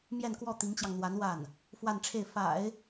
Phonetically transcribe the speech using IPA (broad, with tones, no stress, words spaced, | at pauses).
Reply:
mjɛ˥˧nkwɔ˥˩ t̪i˧˥ŋt͡ɕjɑ˧ŋn̪wa˧˥n wa˥˩n | fwa˥˧nʈ͡ʂʰe˥˩ɪ̯ fa̰˨˩˦ɪ̯